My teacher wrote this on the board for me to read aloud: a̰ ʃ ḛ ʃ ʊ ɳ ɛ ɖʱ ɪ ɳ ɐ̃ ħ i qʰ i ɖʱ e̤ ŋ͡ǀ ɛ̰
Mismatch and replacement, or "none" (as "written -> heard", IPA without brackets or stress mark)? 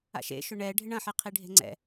none